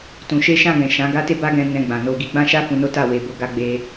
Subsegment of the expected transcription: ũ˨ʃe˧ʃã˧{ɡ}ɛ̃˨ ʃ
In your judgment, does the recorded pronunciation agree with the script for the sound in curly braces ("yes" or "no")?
yes